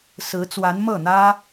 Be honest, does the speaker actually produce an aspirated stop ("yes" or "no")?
no